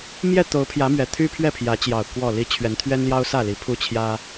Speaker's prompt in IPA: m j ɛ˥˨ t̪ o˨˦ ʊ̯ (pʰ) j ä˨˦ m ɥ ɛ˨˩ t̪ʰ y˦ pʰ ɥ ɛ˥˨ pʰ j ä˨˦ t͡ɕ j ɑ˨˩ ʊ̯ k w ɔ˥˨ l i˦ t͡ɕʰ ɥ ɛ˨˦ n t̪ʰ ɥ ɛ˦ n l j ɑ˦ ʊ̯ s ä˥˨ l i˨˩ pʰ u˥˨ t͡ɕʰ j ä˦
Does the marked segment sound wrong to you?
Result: no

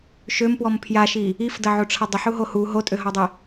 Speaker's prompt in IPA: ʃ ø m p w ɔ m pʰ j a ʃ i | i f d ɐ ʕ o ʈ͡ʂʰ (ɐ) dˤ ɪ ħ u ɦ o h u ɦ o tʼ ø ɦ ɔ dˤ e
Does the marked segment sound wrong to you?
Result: no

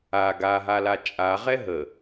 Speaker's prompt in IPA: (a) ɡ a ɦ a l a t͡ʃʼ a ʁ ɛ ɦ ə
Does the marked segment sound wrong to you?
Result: no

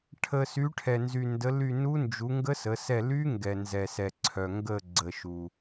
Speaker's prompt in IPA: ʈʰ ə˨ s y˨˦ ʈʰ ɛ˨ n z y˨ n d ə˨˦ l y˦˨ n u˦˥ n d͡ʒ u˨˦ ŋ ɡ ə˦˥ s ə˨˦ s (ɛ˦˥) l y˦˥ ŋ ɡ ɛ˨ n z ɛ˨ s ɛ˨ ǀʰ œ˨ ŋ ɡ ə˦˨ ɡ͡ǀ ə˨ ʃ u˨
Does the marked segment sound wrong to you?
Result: yes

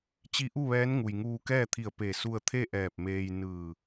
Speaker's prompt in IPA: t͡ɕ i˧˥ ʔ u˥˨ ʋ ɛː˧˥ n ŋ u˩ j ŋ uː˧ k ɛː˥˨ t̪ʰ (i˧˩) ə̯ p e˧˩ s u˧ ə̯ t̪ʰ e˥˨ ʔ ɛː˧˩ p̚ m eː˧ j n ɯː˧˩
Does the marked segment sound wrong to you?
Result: no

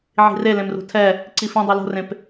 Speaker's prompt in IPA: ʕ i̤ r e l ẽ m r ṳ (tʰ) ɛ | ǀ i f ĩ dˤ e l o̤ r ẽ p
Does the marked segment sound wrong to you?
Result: no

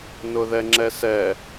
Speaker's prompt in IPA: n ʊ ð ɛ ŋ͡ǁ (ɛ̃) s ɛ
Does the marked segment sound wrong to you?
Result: yes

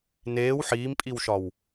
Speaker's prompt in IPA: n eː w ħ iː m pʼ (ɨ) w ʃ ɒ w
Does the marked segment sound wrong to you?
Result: yes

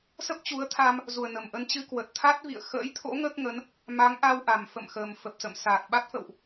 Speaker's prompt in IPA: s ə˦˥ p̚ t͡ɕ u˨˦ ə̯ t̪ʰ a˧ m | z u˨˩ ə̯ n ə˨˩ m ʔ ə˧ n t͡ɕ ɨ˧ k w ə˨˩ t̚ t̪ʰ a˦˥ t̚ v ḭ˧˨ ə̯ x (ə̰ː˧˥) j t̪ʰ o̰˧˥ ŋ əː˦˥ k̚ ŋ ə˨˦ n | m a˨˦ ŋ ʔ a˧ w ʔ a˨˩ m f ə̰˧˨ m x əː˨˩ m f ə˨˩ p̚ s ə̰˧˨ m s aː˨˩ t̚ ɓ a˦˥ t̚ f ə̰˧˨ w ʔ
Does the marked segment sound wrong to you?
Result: no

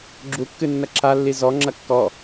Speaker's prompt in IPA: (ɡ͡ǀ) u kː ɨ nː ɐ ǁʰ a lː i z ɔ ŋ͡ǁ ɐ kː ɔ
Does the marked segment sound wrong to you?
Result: yes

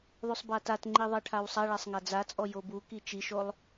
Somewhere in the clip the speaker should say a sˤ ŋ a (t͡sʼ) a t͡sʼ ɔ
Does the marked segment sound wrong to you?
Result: yes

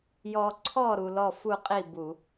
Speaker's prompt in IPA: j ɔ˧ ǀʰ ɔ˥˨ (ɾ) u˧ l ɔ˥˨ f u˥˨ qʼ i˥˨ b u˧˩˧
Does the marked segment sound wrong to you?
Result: no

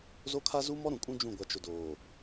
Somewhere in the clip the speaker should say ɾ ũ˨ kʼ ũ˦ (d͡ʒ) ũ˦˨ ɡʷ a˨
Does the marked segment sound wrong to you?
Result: no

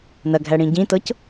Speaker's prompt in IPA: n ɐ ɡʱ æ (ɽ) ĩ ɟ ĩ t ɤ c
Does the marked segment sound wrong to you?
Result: no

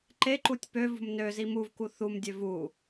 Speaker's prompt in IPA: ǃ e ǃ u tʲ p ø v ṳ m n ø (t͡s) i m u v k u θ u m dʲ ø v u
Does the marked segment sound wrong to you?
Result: yes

